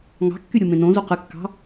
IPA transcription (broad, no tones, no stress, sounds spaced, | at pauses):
ŋ ɑ̤ kː y ɾʲ u m ẽ n õ z u q ɯ kː ɑ̤